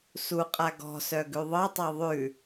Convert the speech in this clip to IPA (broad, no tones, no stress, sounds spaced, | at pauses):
s u qʼ a ɡ ɔ̤ s œ ɡ ʉ ðˤ ɤ tˤ a ðˤ ʉ